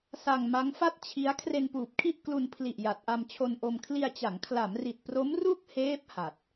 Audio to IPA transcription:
s a˧ ŋ m a˦˥ ŋ f a˥˩ t̚ t͡ɕʰ i˦˥ a̯ kʰ r e˧ n p uː˨˩ p̚ kʰ i˥˩ ʔ k l u˧ n pʰ l i˨˩ ʔ j a˨˩ t̚ ʔ a˧ m t͡ɕʰ o˧ n ʔ o˧ m kʰ l i˧ a̯ t͡ɕ a˩˦ ŋ kʰ l a˩˦ m r i˨˩ t̚ p r o˦˥ m r u˥˩ k̚ h eː˦˥ p̚ h a˨˩ t̚

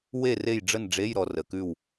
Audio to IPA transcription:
w e˦˨ r e˦˨ j ɖ͡ʐ ə˦˨ n ɖ͡ʐ e˧˥˧ j ɾ ɔ˨ r ə˨ k ʉ˦˨ w

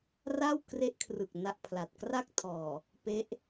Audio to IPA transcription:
r a˥˩ w k r e˦˥ ʔ kʰ r ɯ˨˩ k̚ n a˥˩ ʔ pʰ l a˨˩ t̚ k r a˥˩ k̚ tʰ ɔː˨˩ | p e˦˥ ʔ

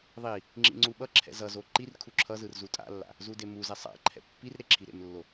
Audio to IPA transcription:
ðˤ i | ŋ͡ǁ ḭ ŋ͡ǀ u ɓ ʌ ǁʰ ɛ̰ z ʌ z o ǃ i r kʰ u ǁʰ ʌ z ɯ r z u tʼ a̰ lː a̰ | z u d e m u z ɛ sˤ a̰ ǃʰ ɛ̰ pː i r ɾ e ǁʰ i ɾ ḛ m lː o

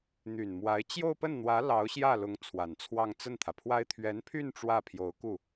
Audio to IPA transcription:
n̪ y˨˩ n m w a˧˥ ɪ̯ t͡ɕ j o˥˧ ʊ̯ p ə˥˩ n n̪ w ä˧˥ l ɑ˧˥ ʊ̯ ɕ j ä˥˩ l ʊ˧˥ ŋ t͡sʰ w a˨˩ n t͡sʰ w ɑ˥˧ ŋ t͡s ə˥˩ n t̪ʰ ä˩ pʰ w a˥ ɪ̯ t̪ʰ ɥ ɛ˧˥ n pʰ y˥˧ n ʈ͡ʂ w ä˥˩ pʰ j o˧˥ ʊ̯ k u˥˩

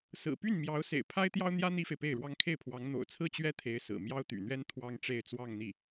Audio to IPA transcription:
s ɹ̩˨˩ p y˥˩ n m j ɑ˧˥ ʊ̯ s ḛ˨˩ ɪ̯ pʰ a˥ ɪ̯ t̪ j ɑ˥ ʊ̯ n̪ j ä˥ n̪ i˥ f e˨ ɪ̯ p e˥˩ ɪ̯ ɻ w ɑ˥ ŋ kʰ e˥˩ ɪ̯ pʰ w ɑ˧˥ ŋ n̪ o̰˨˩ ʊ̯ t͡sʰ ɹ̩˥˩ t͡ɕ ɥ ɛ˥ t̪ʰ e˧˥ ɪ̯ s ɹ̩˨˩ m j ɑ˥ ʊ̯ t̪ y̰˨˩ n̪ ɥ ɛ˥ n t̪ʰ w ɑ˥ ŋ ʈ͡ʂ e˥˧ ɪ̯ t͡s w ɑ˥˧ ŋ n̪ i˥˩

